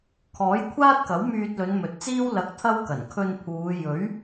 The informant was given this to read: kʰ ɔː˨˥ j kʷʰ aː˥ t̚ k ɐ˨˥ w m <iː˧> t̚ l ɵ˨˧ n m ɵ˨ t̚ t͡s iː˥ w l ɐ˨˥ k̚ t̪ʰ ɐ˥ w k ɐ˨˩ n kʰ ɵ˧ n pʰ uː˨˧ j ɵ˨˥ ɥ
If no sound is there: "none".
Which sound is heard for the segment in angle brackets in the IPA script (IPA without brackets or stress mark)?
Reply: yː˧